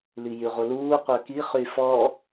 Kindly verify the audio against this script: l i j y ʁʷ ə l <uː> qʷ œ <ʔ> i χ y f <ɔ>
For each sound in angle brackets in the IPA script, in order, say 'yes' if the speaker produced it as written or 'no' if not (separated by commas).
yes, no, yes